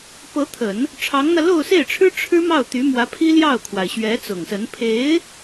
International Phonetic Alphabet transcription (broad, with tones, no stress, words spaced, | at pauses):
pɤ˧˥t̪ʰə˨˩˦n | ʈ͡ʂʰɑ˧˥ŋn̪ä˧ lo˥˧ʊ̯se˥˩ɪ̯ʈ͡ʂʰɻ̩˥ ʈ͡ʂʰɻ̩˥mɑ˥˩ʊ̯ t̪y˧˥mwä˧˥ pʰi˥ljɑ˥˩ʊ̯kʰwa˩ɪ̯ ɕɥɛ˧˥t͡sʊ˨˩ŋsə˧˥n pʰe˧˥ɪ̯